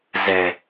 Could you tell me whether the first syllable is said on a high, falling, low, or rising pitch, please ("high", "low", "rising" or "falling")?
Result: low